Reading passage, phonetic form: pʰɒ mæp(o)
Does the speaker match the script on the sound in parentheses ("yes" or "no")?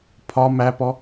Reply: no